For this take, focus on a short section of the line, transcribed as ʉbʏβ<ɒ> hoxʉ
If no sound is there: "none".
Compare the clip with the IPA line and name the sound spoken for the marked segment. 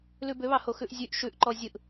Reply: ɑ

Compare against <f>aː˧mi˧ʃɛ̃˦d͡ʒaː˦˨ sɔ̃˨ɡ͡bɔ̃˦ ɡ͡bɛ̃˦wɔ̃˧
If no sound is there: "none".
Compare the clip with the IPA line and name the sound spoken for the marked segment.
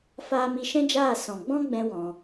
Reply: f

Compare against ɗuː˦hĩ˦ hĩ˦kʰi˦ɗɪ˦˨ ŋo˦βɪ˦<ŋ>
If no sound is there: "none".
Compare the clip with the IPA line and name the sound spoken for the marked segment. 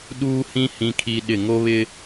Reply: none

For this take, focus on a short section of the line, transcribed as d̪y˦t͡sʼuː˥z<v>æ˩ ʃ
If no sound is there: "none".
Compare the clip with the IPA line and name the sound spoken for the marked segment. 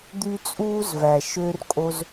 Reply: v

